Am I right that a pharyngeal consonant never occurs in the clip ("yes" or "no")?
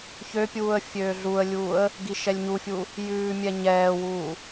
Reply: yes